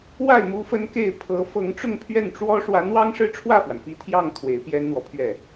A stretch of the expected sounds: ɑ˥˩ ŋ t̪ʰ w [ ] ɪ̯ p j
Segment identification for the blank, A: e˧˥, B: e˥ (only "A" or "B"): A